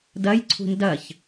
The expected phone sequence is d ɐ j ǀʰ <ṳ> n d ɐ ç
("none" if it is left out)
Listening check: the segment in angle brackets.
ṳ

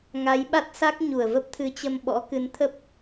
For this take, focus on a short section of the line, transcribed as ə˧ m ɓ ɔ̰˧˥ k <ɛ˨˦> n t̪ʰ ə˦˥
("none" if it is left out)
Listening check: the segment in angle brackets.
ɨ˨˦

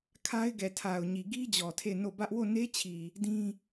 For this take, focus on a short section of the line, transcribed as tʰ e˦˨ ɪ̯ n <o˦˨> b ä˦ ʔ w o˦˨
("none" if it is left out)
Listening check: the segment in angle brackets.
o˦˨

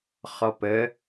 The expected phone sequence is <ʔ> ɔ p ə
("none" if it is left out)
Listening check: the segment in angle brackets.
χ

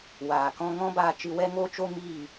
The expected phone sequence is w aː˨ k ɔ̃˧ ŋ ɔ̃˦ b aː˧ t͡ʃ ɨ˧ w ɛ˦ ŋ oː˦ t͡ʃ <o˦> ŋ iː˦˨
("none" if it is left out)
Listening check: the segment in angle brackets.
o˦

